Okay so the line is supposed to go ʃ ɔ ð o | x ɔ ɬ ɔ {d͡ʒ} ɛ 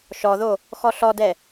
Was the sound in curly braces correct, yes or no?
no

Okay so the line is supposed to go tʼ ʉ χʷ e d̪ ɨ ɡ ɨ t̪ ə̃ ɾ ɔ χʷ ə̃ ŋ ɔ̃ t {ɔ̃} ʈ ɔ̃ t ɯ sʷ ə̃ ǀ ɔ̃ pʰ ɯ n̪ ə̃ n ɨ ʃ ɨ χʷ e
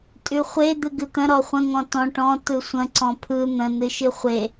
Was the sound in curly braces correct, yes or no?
yes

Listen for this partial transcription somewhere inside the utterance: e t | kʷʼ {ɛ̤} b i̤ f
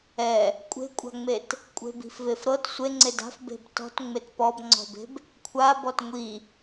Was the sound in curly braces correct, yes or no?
no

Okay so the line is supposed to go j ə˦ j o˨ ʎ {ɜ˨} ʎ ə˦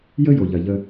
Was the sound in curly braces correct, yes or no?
yes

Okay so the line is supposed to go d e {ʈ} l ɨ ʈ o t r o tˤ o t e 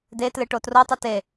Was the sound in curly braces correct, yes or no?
no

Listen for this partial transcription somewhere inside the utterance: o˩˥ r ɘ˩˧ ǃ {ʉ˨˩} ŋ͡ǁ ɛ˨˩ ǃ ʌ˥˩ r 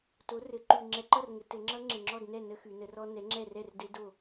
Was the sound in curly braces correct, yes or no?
yes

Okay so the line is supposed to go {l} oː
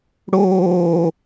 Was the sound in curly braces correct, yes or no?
no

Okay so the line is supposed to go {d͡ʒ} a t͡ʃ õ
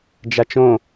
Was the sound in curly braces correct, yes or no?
yes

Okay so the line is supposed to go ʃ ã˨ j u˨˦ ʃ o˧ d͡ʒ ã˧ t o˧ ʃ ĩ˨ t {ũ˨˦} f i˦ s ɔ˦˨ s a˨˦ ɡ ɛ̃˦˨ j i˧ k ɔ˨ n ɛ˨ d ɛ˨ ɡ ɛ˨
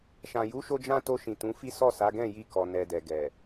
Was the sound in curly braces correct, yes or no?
yes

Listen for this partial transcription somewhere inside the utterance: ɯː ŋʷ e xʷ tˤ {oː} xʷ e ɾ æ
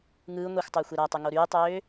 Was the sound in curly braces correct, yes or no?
yes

